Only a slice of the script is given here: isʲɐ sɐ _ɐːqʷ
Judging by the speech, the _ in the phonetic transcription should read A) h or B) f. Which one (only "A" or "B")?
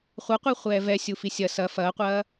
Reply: B